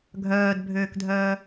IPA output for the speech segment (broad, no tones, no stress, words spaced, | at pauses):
ɡʱœːdbʱøːkdʱœː